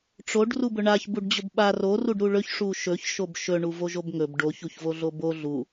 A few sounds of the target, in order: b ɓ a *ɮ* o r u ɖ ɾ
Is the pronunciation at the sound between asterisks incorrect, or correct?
incorrect